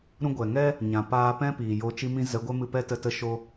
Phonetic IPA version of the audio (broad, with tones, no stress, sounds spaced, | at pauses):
ɾ ũ˧ ɡʷ ɛ˨ ŋ ɛ˦ | ɲ ã˨ p aː˧ p ɛ̃˦ p iː˨ j o˧ t͡ʃ i˧ m ĩ˧ z ə˨˦ ɡʷ ɛ˦ m ɨ˧ p ɛ˦ t ə˧ t ə˧ ʃ o˧